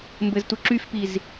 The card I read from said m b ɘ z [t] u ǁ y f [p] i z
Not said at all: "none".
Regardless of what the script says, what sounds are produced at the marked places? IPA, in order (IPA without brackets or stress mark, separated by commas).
t, p